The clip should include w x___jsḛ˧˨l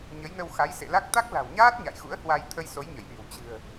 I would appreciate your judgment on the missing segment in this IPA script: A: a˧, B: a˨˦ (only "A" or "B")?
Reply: B